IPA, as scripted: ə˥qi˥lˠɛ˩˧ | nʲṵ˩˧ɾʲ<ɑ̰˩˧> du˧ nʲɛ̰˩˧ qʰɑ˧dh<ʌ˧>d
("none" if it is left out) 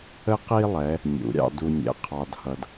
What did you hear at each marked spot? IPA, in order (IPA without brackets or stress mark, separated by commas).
ɑ̰˧, ʌ˧